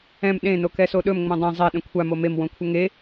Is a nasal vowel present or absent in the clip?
present